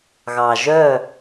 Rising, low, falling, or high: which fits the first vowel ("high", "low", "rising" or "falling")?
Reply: low